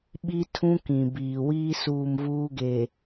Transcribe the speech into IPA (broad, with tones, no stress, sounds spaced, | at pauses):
ɓ i˦ tʰ ũ˦ k ĩ˨ b iː˨ w iː˦ s uː˦˨ m v uː˦ ɡ e˨